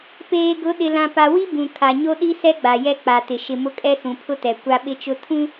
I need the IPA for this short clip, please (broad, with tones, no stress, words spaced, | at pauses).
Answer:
peː˨ɡʊ˨˦ɗɪ˨lã˨ pa˨wi˦ bũ˨ kʰa˨ɲo˦ɗi˦sɛ˦ ɡ͡ba˨jɛ˦ k͡pa˨tɪ˨ ʃɪ˨mʊ˦kʼɛ˦ sũ˨pʰʊ˦tɛ˨ kʷa˦ɓɪ˦t͡ʃʊ˦ tʰũ˦